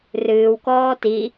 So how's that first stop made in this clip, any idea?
plain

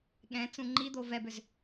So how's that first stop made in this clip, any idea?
implosive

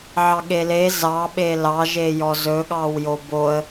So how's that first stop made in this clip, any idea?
implosive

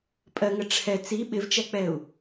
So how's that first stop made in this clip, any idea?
ejective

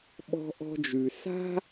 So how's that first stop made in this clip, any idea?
implosive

